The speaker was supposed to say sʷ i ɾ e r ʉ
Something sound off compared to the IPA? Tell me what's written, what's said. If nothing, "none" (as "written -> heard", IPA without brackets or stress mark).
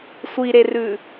none